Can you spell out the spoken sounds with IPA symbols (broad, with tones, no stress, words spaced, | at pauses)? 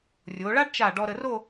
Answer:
rʲo˩˧ɭa˥ɖt͡ʃa˧˩ ɖɔ˧ɾə˧ ro˥˧